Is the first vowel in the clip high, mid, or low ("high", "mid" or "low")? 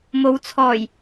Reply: mid